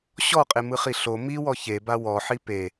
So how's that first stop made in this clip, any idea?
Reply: ejective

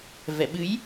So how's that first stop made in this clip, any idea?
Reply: implosive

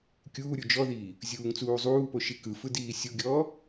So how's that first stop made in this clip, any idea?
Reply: plain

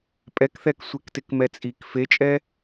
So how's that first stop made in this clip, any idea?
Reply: ejective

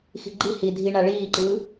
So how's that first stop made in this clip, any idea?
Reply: click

